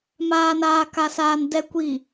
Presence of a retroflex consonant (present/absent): absent